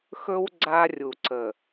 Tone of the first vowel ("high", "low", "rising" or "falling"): high